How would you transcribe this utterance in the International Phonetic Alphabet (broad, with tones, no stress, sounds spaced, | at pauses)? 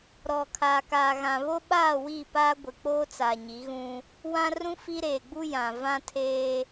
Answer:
ɾ ɔ˨ kʰ aː˨ k aː˨ ɣ ã˨ β o˦ ɓ aː˦˨ w i˦˨ p aː˦ ɡʷ ɪ˨ k͡p oː˦ t͡s a˨ ɲ i˨˦ ɣ ũ˦ | w ã˦ r ũ˦ f i˦ ɾ eː˨ ɡ͡b u˦ j ã˨ v ã˦ tʰ eː˦